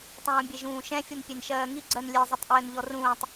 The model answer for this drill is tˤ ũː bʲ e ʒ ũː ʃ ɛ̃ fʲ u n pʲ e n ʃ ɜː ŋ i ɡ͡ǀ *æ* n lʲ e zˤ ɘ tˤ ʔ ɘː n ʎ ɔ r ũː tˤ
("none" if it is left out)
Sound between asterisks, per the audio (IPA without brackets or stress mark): ɜ